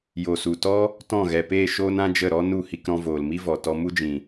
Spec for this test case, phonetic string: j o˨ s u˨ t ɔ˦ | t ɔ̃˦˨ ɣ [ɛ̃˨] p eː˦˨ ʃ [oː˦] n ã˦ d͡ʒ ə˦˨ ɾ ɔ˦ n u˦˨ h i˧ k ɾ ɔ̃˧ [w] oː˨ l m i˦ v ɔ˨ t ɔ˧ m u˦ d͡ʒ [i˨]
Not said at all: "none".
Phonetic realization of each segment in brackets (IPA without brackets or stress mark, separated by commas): ɛ˨, oː˦, v, ĩ˨